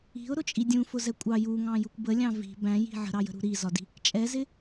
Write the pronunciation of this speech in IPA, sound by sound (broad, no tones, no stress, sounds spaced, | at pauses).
i̤ ʊ̯ ɾ ʊ t͡ʃʼ i dʲ ũ f ʊ z ɛ kʷʼ ɑ j u ŋ ɑ̃ j u kʷ b ə lʲ ɑ̃ v i̤ b æ̃ j i̤ ʕ ə̤ ɾ ɑ j ə̤ ɾ ṳ ɾ i z ɒ d i̤ | t͡ʃʼ ɛ z ɪ